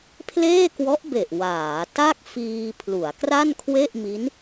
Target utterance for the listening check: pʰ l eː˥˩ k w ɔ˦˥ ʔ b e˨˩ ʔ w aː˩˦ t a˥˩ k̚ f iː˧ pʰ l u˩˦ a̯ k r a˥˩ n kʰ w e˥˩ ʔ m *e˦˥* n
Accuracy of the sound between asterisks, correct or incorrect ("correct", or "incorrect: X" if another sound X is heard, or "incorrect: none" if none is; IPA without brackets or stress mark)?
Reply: incorrect: i˦˥